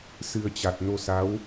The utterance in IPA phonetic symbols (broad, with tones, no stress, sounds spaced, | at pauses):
s ɨ˧ ə̯ t͡ɕ a˨˩ t̚ n o˧ s a˨˦ w